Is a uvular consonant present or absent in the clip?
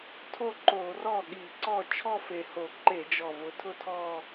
absent